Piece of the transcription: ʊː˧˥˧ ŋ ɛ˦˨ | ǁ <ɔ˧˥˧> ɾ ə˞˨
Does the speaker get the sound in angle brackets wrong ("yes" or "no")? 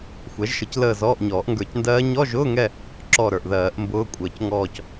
yes